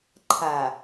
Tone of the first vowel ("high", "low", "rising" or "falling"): low